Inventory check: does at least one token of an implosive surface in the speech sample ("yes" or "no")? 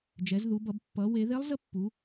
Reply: no